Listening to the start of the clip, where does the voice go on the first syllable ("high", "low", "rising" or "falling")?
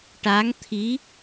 rising